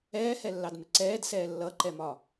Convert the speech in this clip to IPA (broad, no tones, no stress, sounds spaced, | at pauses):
ɛː h ɛ lː ɑ d m ɪ ǀ ɛː d s ɛː lː ʌ ǃ ɛ m ɒ